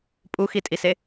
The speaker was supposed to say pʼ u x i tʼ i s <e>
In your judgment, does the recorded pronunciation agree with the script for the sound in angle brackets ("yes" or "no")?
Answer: yes